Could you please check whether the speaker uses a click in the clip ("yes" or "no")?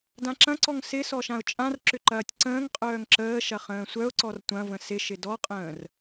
yes